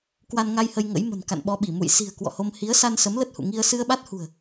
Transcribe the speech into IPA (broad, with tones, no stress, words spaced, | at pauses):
kwa˧nŋa˧jhə˧j ŋə̰˧˥jmə̤˨˩n ka̰˧˨nɓɔ˧ɓi˧˩ mṵ˧˨jsi̤˨˩ə̯ kwɔ̰˧˨ho˧m hi˨˦ə̯sa˧n sə˨˦mlə˦˥t̚hṵ˧˨ ŋi˧ə̯ sɨ˧ə̯ɓa˦˥t̚hṳ˨˩ə̯